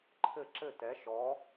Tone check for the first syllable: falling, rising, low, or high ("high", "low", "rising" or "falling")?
falling